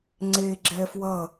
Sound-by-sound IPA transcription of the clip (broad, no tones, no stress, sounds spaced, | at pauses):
ŋ͡ǀ e ɡ͡ǁ ɛ f w ʌ